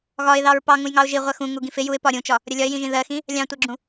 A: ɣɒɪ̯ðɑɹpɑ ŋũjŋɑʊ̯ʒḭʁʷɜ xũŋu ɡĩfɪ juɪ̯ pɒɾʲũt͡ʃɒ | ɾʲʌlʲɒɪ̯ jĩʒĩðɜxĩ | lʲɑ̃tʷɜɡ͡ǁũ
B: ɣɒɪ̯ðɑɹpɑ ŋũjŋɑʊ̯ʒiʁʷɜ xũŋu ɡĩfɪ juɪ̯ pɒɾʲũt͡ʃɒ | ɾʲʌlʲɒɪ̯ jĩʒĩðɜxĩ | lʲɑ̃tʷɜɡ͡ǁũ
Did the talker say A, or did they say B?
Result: B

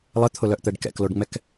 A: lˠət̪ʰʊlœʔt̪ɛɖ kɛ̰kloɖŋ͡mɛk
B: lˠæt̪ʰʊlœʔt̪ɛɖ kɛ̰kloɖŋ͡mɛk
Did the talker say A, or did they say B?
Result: A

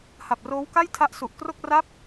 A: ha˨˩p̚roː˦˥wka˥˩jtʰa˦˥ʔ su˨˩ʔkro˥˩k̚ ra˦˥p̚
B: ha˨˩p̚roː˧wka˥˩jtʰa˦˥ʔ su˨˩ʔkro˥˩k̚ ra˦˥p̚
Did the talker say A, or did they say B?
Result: A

